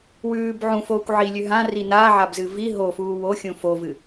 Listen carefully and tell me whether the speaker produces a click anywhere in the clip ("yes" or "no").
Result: no